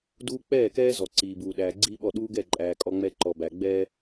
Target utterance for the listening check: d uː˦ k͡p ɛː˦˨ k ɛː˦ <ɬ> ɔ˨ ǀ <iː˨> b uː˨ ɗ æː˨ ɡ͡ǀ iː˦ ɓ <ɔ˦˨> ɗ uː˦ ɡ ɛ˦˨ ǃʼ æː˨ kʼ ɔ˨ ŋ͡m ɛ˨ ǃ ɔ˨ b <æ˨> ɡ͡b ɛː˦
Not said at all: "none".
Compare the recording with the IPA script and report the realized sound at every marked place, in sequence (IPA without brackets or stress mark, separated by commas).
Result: z, iː˨, ɔ˦˨, æ˨